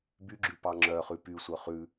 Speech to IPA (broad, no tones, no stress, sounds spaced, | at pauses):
b y ɡ͡ǁ ʉ p ɑ ŋ͡ǁ œ χ ʉ p y sʷ œ χ ʉ